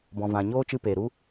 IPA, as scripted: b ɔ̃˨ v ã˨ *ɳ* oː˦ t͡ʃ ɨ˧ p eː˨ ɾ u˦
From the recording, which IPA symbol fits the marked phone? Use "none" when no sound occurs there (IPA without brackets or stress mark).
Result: ɲ